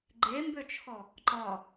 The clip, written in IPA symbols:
ɡ͡ǃ e m b ø t͡ʃʰ ɔ | ǃ ɒ

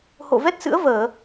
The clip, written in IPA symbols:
h o̰˧˨ v ɛ˦˥ t̚ s ɨ̰˧˥ ə̯ v əː˧˩˨

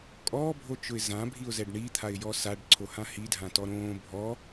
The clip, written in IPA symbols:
kʼ ɔː bʱ o t͡ʃ ʊ ɪ̯ z ã bʱ i ʊ̯ z ɛ ɖ ɳ i t̪ʰ a ɪ̯ j ɔ s a ɖ ǀʰ o h ã h i dʱ ã t ɔ ɾ õː bʱ ɔ

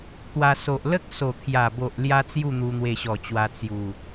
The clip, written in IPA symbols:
t̪ w a˧ s o˨ ʔ l ə˦ k̚ s o˨˩ t̪ʰ j a˨˩ b o˨ ʔ l j a˦ t͡s j u˥˧ n̪ u˧ n̪ w e˧ ɕ ɔ˨˩ t͡ɕ w a˧ t͡s j u˨˩

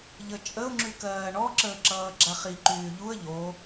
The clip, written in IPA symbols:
ʎ ə t͡ʃʼ ə ʊ̯ ŋ͡ǁ y k ɜː ɳ ɔ ǁ əː ǁ ʌː ɡ͡ǁ a χ i ǃ yː ʎ u ə̯ ʎ o

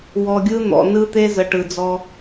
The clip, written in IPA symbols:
w ɔ˨ ɡʲ ɯ˦ n̪ ɔ̰˨ n ɯ˦ t̪ e˦ z ə˨ ʈ ɯ˨ d͡z ɔ˦

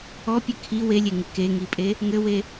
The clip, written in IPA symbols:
ɔ pʲ ɨ kʰ i w e lʲ e ŋ ɨ k e ŋ i pʼ e | ŋ ɘ w e

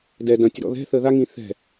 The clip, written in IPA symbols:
d ɛ d ɐ̃ tʲ ə ɾ ɔ̰ ð ɛ̤ θ əː ð a ŋ ĩː θ ɛ̤

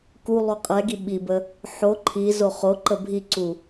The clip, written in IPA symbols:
k u lˠ u qʼ ɛ ɡ i ɓ i b ə | ħ o ǃʰ i z o χ o ǃ ə bʱ i ǀ u

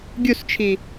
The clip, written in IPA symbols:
ɡʲ u s t͡ʃʰ i

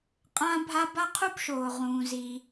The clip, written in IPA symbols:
qʼ ã˥ bʱ a˥ b a˥ qʰ u˥ b ʃ oː˩ ʁ ũː˩ z iː˩

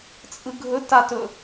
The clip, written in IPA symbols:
t͡sʼ ɯ ɡʱ ɵ t a t ɵ

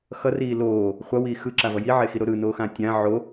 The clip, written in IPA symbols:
x ʌ r iː l oː | χʷ ʌ w iː x ɯ ǁ a v ʌ j i ʕ e x i ɾ o ɾ ɯ n oː x ãː tʲ ã ʕ o

